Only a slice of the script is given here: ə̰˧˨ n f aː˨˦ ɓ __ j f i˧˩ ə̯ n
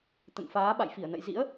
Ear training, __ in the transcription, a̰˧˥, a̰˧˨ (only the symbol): a̰˧˨